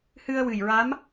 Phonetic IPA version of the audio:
h ɨ˧ ə̯ w ɨ˨˩ j ɹ a˧˥ m

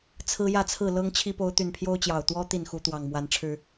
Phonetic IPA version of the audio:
t͡sʰ ɹ̩˦ j ä˥˨ t͡sʰ ɹ̩˥˨ l ɤ˦ ŋ t͡ɕʰ i˦ p o˨˦ ʊ̯ t̪ y˨˩ n pʰ j o˦ ʊ̯ t͡ɕ j ɑ˨˩ ʊ̯ t̪ w ɔ˦ t̪ i˥˨ n x u˨˦ t̪ w ɑ˨˩ ŋ m w a˨˦ n ʈ͡ʂʰ ɻ̩˦

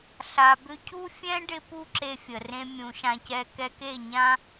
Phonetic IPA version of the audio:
ɬ a˨ b ʏ˧ cʰ u˦ fʲ ɛ̃˦ ɖ ɪ˦ p u˦ ǁ e˦ fʲ ə˨ r ẽ˦ mʲ ũ˨ ʃ ã˧ c ɛ˧ k ɛ˧ k e˦˨ ɲ ã˦

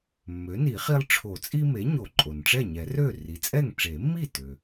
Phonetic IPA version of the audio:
mː ø˩˥ n i˨˩˦ χ i˦ lˠ ʈ͡ʂʰ o˨˩˦ t͡sʼ i˦ m e˩˥ ɲ o˨˩˦ ǃʼ o˩ n ʈ͡ʂ ɛ˥˩ ɲ ɛ˨˩˦ r ø˥˩ r i˩˥ t͡sʼ ɛ˥˩ ŋ ʈ͡ʂ e˨˩˦ mː i˥˩ t ø˩

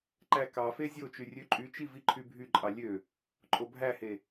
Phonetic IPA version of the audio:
ǃ æ k ɑ f e zʲ o t͡ʃ y rʲ ø ǃʼ y t͡ʃ i v i ǃʰ y bʱ y ǃʼ ɑ lʲ ø | ǃʼ o bʱ æ h e

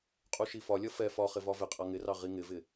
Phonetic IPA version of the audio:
qʼ u ʃ i f ɒ lʲ ʌ f ɛ f ɒ χ ɪ v ɒ v ɪ qʼ ʌ ŋ ɪ r ɑ ʁ i ŋ ɪ v ɪ

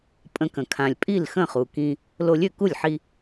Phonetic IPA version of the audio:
pʼ ə̃˧ k ə̃˩ kʰ ã˩ lʲ pʼ i˥˩ l x ə̃˥˩ χ u˩ k ĩ˧ | l o˧ lʲ ø˥˩ k u˥˩ lʲ ħ i˧

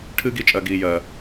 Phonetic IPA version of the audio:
ʈʰ ɨː˦ ɡ i˧ t͡ʃʼ ɜ˨ ɡ iː˨ j ɜ˨

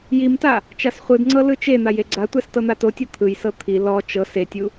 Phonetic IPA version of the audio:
j i m t a | t͡ʃ a s χʷ ɯ d ŋ͡ǀ ɤ l ɯ t͡ʃ e n̪ a j e ɡ͡ǀ a tʷ ɛ s t ɤ n̪ a t o tʲ ɤ t̪ʰ ɯ j s ɤ t̪ʰ i l ɔ t͡ʃ ɤ s e tʲ u

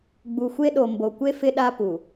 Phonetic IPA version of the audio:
ɡ͡b u˨ xʷ e˦ ɗ o˨ m b o˨ kʷ e˦ f ɪ˦ ɗ a˦ p u˨

